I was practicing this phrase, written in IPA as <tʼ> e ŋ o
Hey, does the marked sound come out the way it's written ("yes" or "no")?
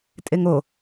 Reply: yes